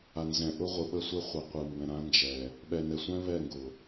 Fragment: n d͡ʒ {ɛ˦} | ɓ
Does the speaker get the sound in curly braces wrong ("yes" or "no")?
yes